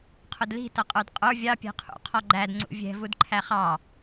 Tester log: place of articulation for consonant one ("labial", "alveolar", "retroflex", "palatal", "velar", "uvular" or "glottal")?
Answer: uvular